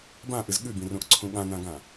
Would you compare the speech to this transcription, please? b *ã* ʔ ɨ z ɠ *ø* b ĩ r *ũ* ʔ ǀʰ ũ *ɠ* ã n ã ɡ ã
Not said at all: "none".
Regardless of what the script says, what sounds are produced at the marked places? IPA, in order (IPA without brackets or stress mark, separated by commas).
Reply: ã, ʉ, ũ, ɠ